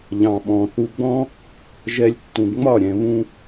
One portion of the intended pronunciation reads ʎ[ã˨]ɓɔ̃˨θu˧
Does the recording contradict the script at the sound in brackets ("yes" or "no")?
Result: yes